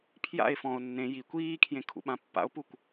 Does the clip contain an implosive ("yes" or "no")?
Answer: yes